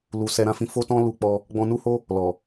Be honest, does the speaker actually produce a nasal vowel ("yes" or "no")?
yes